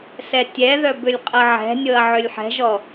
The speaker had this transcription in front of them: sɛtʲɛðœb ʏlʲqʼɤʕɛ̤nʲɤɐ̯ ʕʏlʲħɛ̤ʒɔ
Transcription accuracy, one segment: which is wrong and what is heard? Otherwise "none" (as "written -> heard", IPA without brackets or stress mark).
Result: none